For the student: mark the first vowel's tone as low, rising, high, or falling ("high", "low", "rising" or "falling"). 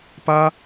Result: high